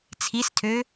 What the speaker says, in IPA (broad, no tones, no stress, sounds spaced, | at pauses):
t͡sʰ i s tʰ ø